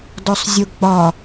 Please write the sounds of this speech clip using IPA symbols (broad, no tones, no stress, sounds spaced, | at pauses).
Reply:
d ɔ sˤ zʲ o ɡ͡b ɒ